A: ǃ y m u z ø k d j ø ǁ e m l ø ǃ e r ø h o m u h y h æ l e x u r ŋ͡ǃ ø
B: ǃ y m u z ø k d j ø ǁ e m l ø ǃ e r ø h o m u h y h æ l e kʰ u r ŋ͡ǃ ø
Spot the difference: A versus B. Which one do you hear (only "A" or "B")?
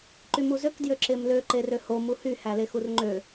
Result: A